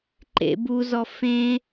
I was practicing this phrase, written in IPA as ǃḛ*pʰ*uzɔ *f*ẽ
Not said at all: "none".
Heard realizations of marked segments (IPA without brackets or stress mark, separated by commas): b, f